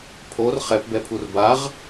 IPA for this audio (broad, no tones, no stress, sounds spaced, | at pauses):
pʰ o r χ ɛ p b ɛ pʰ u r b a ʁ